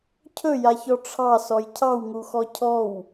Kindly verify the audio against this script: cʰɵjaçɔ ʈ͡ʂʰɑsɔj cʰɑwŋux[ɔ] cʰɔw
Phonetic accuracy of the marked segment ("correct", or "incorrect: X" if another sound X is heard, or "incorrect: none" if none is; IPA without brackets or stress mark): correct